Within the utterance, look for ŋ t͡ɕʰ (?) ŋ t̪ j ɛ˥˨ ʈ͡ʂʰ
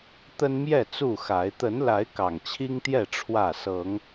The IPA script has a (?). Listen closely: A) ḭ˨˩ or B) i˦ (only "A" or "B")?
B